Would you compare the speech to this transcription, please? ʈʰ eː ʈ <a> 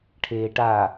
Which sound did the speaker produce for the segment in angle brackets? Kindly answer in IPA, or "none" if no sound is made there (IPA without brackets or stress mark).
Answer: a